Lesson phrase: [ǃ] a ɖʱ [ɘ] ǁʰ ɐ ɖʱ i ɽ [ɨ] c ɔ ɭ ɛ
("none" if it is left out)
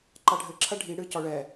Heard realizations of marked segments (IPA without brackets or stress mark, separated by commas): ǃ, ɘ, ɨ